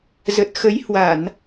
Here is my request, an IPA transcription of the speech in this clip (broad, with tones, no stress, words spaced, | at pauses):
zə˨˩t̚ xə˨˦j hwa˧˩˨n